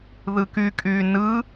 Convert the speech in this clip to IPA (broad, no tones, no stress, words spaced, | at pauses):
ðɯkykʼy nɯ